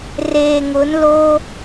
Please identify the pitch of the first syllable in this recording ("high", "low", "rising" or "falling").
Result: low